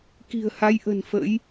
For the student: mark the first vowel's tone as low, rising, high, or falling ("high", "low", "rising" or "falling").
low